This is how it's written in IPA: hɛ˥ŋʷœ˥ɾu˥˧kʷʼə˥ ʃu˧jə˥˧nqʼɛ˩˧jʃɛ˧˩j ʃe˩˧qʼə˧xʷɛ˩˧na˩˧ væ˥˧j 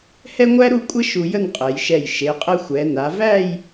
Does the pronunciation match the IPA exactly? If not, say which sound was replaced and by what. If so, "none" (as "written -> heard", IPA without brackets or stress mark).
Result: œ˥ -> æ˥